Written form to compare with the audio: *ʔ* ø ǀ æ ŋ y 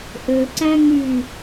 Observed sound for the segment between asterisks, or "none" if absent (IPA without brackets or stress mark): ʔ